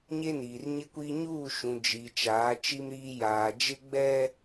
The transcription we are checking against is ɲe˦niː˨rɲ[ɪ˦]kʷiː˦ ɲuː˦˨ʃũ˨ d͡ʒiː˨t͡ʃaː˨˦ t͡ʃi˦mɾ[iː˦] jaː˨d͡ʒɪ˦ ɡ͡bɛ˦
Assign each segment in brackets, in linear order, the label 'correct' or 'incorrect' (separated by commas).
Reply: correct, correct